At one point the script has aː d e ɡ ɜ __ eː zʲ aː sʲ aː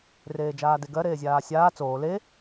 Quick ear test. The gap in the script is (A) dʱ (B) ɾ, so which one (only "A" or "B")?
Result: B